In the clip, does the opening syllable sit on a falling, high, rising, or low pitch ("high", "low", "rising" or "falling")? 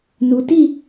low